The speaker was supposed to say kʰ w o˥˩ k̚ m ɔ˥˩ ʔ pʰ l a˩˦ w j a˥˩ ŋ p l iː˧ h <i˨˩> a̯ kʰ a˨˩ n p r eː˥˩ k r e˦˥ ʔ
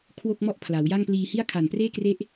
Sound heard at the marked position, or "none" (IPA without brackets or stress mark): i˥˩